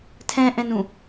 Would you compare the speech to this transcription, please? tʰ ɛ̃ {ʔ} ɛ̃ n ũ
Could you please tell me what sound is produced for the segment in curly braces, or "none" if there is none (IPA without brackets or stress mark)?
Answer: ʔ